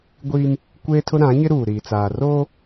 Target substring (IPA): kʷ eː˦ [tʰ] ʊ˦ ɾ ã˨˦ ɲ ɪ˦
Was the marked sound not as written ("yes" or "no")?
no